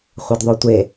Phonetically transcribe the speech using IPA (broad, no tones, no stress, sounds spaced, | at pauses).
χʷ ɛ d ðˤ o tʷ e